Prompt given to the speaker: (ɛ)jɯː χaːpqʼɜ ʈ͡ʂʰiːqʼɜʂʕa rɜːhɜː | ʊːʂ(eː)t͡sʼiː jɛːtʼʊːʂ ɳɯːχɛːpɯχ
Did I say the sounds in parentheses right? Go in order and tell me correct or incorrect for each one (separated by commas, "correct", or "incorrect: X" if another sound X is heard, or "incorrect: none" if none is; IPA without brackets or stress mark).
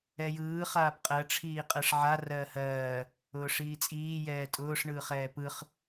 correct, incorrect: iː